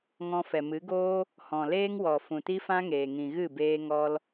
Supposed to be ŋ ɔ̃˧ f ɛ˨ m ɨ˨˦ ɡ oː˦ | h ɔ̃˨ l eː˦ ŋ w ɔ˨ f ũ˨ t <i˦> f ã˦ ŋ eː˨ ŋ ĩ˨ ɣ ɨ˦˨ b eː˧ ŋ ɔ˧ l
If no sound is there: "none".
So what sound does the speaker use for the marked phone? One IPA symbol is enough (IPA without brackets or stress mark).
i˦